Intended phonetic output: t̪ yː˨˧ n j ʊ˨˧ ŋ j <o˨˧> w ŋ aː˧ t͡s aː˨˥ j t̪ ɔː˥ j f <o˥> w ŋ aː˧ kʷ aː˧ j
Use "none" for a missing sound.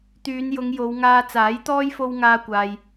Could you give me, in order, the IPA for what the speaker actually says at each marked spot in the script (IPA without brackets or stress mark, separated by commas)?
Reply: o˨˧, o˥